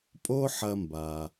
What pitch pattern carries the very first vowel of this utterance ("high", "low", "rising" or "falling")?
high